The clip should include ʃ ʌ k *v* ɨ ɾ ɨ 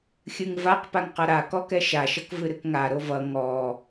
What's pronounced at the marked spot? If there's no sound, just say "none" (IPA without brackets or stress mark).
v